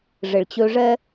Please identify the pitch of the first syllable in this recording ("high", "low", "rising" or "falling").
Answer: low